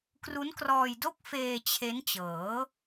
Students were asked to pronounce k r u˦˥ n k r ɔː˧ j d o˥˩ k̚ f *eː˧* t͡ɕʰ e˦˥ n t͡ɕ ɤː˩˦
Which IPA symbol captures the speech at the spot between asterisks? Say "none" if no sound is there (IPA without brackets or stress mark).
eː˧